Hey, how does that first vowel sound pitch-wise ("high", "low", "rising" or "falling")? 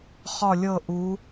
falling